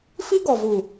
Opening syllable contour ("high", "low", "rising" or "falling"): high